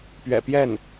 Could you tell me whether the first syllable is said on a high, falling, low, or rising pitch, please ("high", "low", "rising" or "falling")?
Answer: low